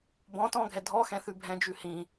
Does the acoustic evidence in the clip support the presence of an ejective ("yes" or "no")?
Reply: no